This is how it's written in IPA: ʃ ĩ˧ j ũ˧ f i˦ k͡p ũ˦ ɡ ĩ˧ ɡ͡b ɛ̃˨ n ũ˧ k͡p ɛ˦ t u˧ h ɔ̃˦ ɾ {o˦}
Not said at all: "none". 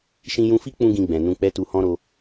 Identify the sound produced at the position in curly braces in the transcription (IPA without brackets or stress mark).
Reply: o˧